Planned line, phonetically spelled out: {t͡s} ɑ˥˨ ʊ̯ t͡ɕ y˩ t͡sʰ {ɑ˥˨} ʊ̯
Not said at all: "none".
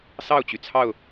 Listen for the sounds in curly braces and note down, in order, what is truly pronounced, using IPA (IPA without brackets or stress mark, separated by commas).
s, ɑ˥˨